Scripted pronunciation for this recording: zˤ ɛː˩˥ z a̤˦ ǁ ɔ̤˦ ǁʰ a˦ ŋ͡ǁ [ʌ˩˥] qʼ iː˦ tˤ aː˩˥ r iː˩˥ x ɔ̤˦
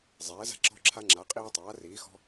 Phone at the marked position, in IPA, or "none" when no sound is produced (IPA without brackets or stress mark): a˩˥